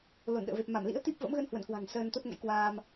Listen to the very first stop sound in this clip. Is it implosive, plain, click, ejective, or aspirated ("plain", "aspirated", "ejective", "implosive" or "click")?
implosive